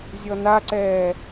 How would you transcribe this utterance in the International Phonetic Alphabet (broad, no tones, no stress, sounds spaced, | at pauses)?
zʲ ɔ n a ǀ ɛː